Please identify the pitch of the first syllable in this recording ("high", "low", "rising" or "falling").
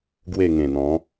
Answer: falling